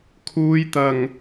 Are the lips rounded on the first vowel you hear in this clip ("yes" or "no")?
yes